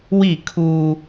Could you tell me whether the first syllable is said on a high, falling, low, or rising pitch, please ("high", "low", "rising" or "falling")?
falling